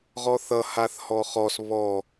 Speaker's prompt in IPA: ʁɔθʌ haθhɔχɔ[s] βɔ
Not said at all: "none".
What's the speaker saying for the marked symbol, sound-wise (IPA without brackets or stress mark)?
s